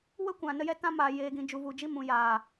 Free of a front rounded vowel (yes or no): yes